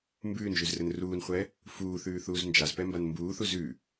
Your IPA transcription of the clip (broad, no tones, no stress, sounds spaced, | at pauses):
m b ʉː n ʒ ʉ z r ɘ n r uː n χʷ ɛ | f uː θ ʉː θ uː z n d͡ʒ a z p ɛ m b a n m b uː θ u z ʉ